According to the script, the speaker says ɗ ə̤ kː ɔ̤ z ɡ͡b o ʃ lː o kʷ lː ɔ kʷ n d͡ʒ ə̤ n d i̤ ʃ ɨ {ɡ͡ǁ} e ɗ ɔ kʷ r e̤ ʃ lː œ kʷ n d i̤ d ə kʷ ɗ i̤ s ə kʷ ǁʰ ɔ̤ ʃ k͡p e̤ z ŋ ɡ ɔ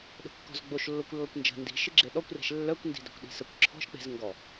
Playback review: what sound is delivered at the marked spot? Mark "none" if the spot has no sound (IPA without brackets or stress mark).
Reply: ɡ͡ǁ